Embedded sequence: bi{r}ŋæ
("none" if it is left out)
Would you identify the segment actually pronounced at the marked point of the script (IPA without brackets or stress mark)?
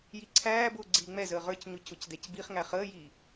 χ